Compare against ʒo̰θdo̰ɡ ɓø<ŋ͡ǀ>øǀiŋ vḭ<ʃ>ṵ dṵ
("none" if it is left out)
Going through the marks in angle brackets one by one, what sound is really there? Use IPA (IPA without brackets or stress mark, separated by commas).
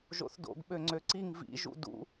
ŋ͡ǀ, ʒ